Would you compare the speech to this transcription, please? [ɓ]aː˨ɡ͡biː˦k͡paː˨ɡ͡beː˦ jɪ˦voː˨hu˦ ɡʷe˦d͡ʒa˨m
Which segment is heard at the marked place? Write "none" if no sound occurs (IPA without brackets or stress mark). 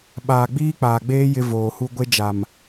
ɓ